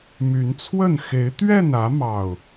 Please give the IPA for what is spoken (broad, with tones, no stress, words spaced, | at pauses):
my˨˦nt͡sʰwə˥˨n xe˨˦ɪ̯t̪ɥɛ˥˨nä˨˦ mɑ˥˨ʊ̯